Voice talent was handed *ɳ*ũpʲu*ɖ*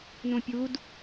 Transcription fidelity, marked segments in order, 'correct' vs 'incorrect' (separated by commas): incorrect, incorrect